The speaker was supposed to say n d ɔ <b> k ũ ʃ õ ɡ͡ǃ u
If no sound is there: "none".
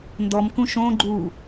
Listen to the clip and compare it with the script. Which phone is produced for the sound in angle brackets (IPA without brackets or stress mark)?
m